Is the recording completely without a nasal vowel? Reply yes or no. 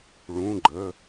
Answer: no